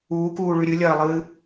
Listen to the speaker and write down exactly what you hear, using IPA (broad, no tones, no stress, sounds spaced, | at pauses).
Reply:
uː k uː ɭ ʉ ɾʲ ɨ lʲ ɐː lˠ ɨː